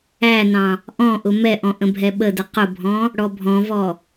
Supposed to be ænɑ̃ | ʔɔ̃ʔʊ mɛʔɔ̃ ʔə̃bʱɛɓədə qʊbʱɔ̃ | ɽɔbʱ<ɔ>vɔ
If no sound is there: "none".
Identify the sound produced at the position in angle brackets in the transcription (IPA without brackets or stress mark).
ɔ̃